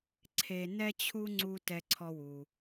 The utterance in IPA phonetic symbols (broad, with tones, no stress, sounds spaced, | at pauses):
ǀʰ e˧ n ɛ˥ t͡ɕʰ u˥ ŋ͡ǀ u˥ t ɛ˧ ǀʰ ɔ˧ w u˩